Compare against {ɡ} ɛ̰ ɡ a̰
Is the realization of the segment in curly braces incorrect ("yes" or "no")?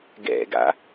no